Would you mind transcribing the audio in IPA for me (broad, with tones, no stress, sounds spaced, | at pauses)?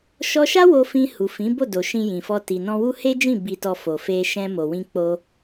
ʃ ɔ˧ ʃ a˦ w o˧ f ĩ˧ h u˨ f ĩ˨˦ b o˦˨ d o˨ ʃ ĩ˧ j ĩ˨ f ɔ˧ t i˨ n ɔ̃˧ w u˦ h e˦ d͡ʒ ĩ˦˨ b i˧ t ɔ˧ f o˨ f e˧ ʃ ɛ̃˧ m o˨ w ĩ˧ k͡p o˧